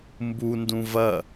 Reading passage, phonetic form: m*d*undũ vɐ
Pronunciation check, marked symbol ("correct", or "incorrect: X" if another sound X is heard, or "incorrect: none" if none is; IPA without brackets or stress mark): incorrect: b